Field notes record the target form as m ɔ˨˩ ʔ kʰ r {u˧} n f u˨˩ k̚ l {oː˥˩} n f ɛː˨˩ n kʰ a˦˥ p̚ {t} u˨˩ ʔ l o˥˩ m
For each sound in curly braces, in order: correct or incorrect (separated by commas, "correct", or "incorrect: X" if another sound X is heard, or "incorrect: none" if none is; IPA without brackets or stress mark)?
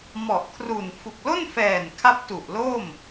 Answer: incorrect: u˨˩, incorrect: o˥˩, correct